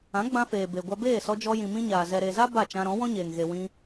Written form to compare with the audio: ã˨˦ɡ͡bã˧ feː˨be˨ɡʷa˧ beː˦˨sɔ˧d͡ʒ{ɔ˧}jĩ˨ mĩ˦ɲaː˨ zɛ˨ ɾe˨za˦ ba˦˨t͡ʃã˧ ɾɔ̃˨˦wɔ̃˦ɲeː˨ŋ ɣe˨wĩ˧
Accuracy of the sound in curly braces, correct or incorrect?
correct